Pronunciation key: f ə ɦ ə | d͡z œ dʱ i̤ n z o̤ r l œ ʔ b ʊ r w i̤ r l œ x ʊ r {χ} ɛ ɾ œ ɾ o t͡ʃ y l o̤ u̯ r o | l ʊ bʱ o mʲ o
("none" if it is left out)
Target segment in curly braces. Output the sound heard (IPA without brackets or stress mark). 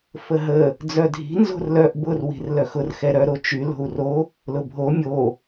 x